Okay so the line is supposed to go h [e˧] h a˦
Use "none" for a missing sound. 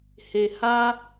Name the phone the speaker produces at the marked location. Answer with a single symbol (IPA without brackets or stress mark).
e˧